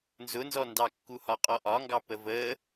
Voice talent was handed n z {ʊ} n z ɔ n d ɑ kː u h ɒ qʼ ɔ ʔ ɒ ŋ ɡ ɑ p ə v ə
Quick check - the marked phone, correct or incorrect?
correct